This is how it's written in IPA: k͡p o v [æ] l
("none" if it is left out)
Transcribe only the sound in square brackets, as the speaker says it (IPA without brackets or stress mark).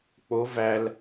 æ